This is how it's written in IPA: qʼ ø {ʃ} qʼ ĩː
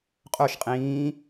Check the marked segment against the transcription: correct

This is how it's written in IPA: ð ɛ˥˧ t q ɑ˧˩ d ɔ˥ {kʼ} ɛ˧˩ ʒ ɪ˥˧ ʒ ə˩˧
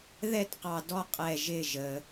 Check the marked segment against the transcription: incorrect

